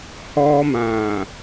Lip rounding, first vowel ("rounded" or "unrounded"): rounded